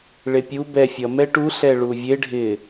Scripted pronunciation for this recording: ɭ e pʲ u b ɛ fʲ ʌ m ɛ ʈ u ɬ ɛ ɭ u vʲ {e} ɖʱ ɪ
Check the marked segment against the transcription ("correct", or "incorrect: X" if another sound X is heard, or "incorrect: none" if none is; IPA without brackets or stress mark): correct